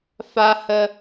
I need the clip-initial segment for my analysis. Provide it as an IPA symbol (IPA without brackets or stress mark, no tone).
f